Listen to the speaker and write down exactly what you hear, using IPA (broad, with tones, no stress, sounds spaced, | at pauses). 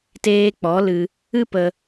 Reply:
t eː˧ k͡p ɔ˨˦ l ɨ˧ | ɨ˦ p ə˧